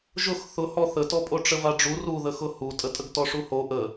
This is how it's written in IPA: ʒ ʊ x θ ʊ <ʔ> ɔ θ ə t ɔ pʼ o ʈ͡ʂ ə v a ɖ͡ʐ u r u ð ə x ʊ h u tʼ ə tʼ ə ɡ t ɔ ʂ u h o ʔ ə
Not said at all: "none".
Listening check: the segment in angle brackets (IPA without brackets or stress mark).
h